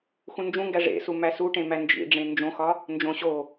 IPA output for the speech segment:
x ũ n d͡ʒ ũ ŋ ɡ æ ʐ ḛ s u m æ s u ʈ ẽ m æ n d͡ʒ ḭ ɖ͡ʐ ẽ n d͡ʒ õ x ɒ | n d͡ʒ õ ɕ o

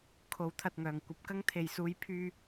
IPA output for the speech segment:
kʰ o˨˥ w t̪ʰ ɐ˨ t̚ ŋ œː˨˩ ŋ kʷ ɐ˧ p̚ k ɐ˥ ŋ t̪ʰ e˨ j s uː˧ j pʰ yː˧

